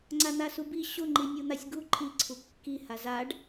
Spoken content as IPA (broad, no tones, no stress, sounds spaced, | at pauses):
ŋ͡ǀ a n̪ a s u b i ɕ ʊ ŋ͡ǃ i nʲ u n̪ a sʲ ɡ u ǃʰ i ǀʰ u kː i h a z a ɖ